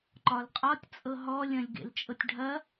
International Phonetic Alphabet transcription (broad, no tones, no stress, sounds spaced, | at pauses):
ǃ ɒ l qʼ ɒ tʲ t͡sʼ ɤ ɦ ɔ lʲ ɐ̃ lʲ ɡ ḛ l t͡ʃʼ ɤ tʲ ɖʱ ɐ